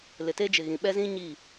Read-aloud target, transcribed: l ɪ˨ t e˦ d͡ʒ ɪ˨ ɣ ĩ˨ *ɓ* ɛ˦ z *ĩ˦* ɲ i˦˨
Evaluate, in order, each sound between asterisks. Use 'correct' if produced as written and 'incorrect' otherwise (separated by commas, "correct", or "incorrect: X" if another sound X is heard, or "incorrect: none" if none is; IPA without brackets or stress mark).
correct, correct